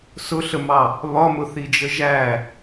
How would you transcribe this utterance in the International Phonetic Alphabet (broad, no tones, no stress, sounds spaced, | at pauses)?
s ʊ ɬ ə m ɑ | β ɒ m ʊ θ i d͡ʒ ə ʒ æ